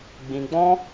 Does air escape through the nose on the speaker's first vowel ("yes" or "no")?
yes